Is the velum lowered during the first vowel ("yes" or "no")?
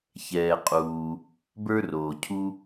no